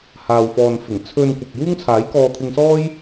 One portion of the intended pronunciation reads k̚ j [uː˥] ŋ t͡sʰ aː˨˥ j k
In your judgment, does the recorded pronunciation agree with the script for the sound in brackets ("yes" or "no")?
yes